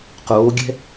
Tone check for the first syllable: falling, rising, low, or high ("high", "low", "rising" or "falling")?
rising